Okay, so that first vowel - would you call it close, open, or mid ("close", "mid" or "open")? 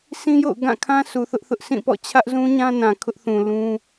close